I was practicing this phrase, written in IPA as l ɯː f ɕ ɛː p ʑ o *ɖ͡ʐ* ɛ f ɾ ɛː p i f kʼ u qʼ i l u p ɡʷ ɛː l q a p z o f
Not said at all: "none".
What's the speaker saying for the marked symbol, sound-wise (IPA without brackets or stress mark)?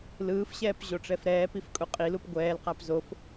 ʈ͡ʂ